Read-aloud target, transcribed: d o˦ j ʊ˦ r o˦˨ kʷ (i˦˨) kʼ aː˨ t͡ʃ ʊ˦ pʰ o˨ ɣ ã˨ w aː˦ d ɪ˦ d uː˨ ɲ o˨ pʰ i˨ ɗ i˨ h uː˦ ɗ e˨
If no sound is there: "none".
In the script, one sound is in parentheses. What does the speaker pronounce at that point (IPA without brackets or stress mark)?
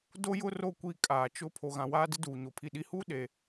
i˦˨